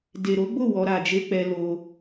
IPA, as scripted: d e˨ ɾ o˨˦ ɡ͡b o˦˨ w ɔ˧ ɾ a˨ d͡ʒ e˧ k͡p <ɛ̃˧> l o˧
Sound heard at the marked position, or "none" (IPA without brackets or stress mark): ɛ˧